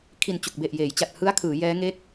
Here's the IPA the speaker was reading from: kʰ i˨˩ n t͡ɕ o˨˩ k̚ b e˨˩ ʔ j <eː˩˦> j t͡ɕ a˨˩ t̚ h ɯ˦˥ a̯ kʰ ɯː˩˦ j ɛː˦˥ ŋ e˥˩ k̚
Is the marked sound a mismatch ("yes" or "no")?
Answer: no